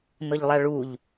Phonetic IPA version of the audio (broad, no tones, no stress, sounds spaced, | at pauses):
n ɤ ʎ lˠ a ɭ u ʎ